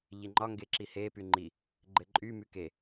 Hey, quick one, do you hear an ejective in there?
yes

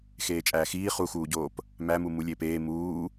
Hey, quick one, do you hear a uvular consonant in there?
yes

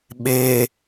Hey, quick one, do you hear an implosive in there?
yes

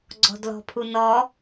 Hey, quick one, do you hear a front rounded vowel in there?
no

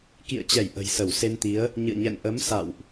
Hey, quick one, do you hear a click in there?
no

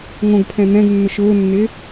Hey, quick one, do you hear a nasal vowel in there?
yes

